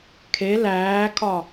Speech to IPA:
kʰ e l æː kʰ ɒ

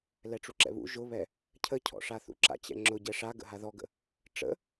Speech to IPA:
l ɛ ʈ͡ʂ u ǁ ɛ̰ β ṵ ʒ ʊ β ɛ | cʰ ə cʰ ɔ̰ ʂ a θ ṵ ǁ a̰ t͡ɕ ɛ̰ ŋ͡ǁ ʊ ɟ ɛ ʂ a ɡ ə̰ ɦ a ð ɔ ɡ ə̰ | ʈ͡ʂ ə̰

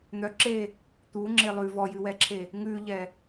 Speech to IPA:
n̪ œ ǁ e | t̪ u ŋ͡ǁ e lˠ ʉ v ɔ j ʉ w ɛ ǁʰ e | ŋ ʉ ʎ ɛ

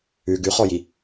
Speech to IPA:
ʉ ɡ ʉ χ ɔ j i

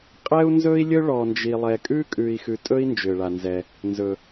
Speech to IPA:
qʼ ɛ˥ u̯ n z ɵ˥ i̯ lʲ ɵ˥ ɭ ɔ˨ n d͡ʒ i˨ lˠ ɛ˨ kʼ ʉ˥ kʼ ʉ˨ i̯ x ʉ˨ tʼ ɵ˦ i̯ n d͡ʒ ʏ˩ ɭ a˩ n z ɛ˩ | n z ɵ˩

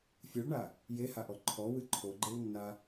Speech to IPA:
fʲ ɨ ɭ ɳ a | j e h a ʔ ɔ ǃʰ ɔ w ɨ ǃʰ o ɡ͡ǃ e w nː a

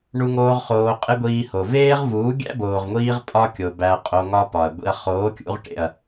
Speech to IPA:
ɳ u˧ ŋ oː˧ ʁ χ oː˧ qʼ e˦ ɡʷ iː˧ h o˨ v eː˦ ʁ v uː˨˦ ɡʲ æ̰˦ b oː˨ ʁ ŋʷ iː˧ ʁ pʼ ɒ˦ kʲ o˨ b æ˧ ɐ̯ qʼ o˧ ŋ ɒ˦ p ɒ˨ ɐ̯ ɡʷ ḭ˧ ɐ̯ χ oː˨˦ kʲ ṵ˧ ʁ ʈ ḛ˨ ɐ̯

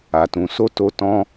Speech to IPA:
a˨ t ũ˨ s o˧ t o˧ t ɔ̃˦

